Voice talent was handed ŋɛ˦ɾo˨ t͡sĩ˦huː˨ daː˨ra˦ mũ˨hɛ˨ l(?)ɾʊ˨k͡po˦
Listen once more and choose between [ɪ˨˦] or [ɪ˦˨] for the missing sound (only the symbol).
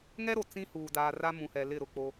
ɪ˦˨